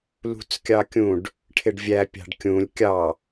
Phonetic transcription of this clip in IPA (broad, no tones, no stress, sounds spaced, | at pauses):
l ṳ t͡s kʲ ɑ kʲ ũ ɖ | ʈʰ ɪ ɖ vʲ æ pʲ ɑ̤ ɖ kʲ ũ lʲ kʲ ɑ